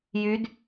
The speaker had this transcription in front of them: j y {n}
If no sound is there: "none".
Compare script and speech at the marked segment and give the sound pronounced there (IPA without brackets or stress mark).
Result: d